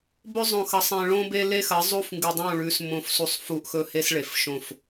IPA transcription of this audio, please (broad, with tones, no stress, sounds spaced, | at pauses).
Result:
b ɵ˦ zˤ õ˨ x ɐ˨ sˤ ẽ˨ ɭ õ˦ b e˦ l e˦ x ɐ˨˦ zˤ u˦ f ŋ ɡ ɨ˨ dˤ õ˦˨ ɭ ʉ˨˦ s m õ˨ f s u˨ sˤ f u˦ ʔ x ɵ˦ h e˦ s ɭ e˨ f ʃ õ˦˨ f